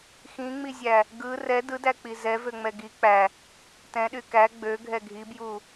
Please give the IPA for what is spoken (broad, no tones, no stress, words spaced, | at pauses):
xĩŋ͡mizʲæ | ɡɯ rɛ dɯdæk͡pi zɛvøŋ͡mɛ ɡi k͡pæ | tɛ̃ɗy kæ ɡ͡bøɡʱɛ ɡʱibju